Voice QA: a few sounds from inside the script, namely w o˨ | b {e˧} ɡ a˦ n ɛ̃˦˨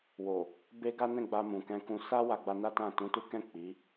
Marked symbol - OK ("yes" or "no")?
yes